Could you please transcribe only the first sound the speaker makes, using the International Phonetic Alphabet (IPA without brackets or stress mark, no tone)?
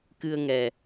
k